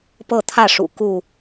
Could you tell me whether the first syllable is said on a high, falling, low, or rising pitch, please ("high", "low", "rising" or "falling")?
falling